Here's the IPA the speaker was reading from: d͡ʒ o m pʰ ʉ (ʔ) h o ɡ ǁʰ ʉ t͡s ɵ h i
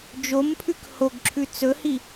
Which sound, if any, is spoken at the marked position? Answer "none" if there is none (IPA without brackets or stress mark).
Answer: k